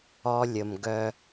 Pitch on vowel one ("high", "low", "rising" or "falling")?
high